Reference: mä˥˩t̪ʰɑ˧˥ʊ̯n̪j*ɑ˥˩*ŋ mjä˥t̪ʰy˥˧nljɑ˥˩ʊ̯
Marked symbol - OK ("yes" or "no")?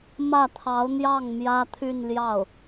yes